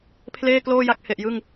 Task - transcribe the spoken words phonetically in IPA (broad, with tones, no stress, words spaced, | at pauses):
pʰleː˥˩kloː˥˩ja˦˥k̚ he˨˩ʔjɯ˥˩ŋ